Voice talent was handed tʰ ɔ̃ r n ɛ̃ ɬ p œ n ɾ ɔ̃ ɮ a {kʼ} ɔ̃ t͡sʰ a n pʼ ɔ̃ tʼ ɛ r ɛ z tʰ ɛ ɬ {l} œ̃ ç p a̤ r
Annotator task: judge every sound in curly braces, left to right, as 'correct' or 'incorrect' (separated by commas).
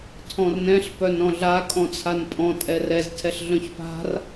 correct, incorrect